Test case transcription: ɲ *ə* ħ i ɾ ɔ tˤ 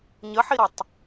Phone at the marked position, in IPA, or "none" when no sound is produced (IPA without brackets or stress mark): ə